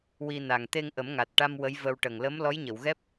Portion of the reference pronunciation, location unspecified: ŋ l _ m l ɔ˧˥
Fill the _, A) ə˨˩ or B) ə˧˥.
B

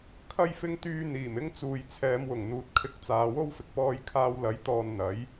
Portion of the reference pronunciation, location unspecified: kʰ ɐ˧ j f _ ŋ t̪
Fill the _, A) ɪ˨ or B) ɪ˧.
B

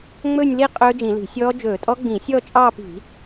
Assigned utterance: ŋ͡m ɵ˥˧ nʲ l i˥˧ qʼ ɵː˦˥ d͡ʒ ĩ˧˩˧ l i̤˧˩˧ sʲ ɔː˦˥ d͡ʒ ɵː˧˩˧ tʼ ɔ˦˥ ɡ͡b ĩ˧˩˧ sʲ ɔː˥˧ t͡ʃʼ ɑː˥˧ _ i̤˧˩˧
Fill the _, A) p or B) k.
A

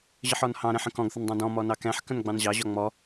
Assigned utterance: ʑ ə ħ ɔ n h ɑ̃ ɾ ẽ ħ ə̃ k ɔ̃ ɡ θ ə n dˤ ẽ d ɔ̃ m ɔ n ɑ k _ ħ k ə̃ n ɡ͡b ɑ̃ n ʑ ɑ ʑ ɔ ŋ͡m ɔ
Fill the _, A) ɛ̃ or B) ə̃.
A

